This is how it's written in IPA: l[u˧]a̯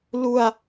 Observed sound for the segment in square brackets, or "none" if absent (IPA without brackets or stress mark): u˧